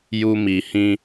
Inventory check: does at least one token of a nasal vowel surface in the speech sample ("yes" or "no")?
yes